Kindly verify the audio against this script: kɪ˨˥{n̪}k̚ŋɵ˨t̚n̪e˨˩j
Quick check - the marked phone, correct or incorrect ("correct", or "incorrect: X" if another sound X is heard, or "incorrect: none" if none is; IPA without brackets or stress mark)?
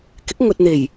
incorrect: none